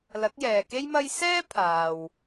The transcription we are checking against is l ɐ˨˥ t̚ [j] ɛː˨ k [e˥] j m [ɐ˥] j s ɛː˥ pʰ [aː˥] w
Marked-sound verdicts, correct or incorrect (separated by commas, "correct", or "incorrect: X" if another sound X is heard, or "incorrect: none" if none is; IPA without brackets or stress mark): correct, correct, correct, incorrect: aː˨